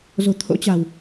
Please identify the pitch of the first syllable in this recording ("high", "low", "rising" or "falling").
low